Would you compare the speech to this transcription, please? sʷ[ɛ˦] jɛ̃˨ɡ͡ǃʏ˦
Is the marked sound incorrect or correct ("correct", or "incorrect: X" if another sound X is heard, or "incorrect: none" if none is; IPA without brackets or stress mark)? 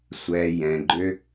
incorrect: ɛ˨